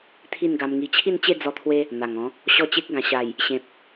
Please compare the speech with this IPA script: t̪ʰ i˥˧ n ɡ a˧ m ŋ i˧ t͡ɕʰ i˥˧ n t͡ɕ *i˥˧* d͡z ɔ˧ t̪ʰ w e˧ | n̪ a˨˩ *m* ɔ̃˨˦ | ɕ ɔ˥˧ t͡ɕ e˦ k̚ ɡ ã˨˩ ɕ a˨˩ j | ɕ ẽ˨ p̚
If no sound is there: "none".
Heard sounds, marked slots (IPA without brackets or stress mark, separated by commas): e˥˧, ŋ